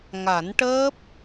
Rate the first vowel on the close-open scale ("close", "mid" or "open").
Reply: open